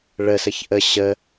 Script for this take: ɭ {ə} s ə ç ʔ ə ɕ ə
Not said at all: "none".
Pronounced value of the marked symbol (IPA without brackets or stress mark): ə